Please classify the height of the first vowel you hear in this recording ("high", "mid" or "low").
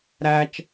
low